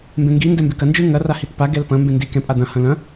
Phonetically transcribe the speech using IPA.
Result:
mbẽŋɡi ndɛmbekɐ nd͡ʒɯŋɐ rahitpa ɡɛlpɐ̃ mbẽndi kɛ̃ pʼad̪ɐ̃ hɐ̃lɐ̃

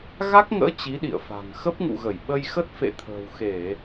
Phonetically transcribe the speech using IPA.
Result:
ɣa˦˥k̚ŋə̰ː˧˥ t͡ɕi˨˦ɗḭ˧˨ə̯fa̤˨˩ŋ xə˦˥p̚ŋṵ˧˨ɣə˧˩j ɓə˧jxə˦˥t̚ fḛ˧˨t̪ʰə̤ː˨˩wxe˧˩˨

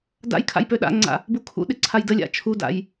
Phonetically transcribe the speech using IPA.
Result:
da̰jkʰa̰j pøɗa̰ŋ͡ǀa̰ | bukʰṵɗɪ ǀʰajdəlʲa̰ t͡ʃʰuda̰j

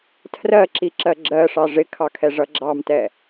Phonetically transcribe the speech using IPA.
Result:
tʰrɜǁiǁɜ ɡ͡ǁɜʂɑ ʐɪkʰɑkʰɛʐʌ ɡ͡ǁɑmtɛ

